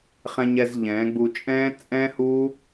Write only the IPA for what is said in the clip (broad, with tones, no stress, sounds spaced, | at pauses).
χ ɛ̃˧ ɲ ɛ˧ z ʎ ɛ̃ː˨˦ ɡ͡b u˧ t͡ʃʼ ɛ̃ː˦ t͡sʼ ɛ̃˦ h uː˦